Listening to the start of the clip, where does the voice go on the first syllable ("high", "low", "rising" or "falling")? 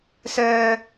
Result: low